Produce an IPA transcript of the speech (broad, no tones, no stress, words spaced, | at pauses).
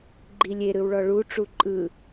ɡ͡ǃilʲe ɾɯwɭɔɭu ʈ͡ʂuǃʼɯ